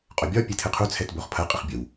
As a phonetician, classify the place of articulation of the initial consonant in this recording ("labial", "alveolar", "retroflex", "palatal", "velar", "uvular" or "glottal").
uvular